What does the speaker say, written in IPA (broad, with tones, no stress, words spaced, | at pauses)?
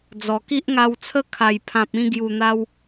d͡zɔ˨˩ki˦ʔŋa˧wt͡sʰə˦ kʰa˨˩jpʰã˨p̚ĩ˧ ɡju˨˩n̪a˧w